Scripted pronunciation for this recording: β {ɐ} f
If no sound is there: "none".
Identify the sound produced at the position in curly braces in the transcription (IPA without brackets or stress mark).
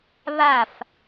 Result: a